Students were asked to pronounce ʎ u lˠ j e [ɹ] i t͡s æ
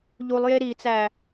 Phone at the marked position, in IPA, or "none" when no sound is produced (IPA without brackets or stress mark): ɾ